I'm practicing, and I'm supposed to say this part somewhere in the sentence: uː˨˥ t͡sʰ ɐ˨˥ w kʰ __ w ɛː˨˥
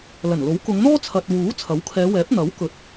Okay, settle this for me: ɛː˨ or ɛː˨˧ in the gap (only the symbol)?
ɛː˨˧